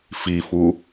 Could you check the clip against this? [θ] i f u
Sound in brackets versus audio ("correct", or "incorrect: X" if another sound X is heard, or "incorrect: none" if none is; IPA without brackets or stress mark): incorrect: f